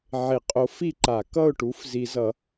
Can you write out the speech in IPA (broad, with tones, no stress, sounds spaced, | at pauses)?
ʕ e˨˩˦ qʼ o˨˥ f i˥˩ ǃ a˨˩˦ k ʌ˥˩ ʊ̯ ʈ u˨˥ f z i˨˩˦ z ʌ˨˩˦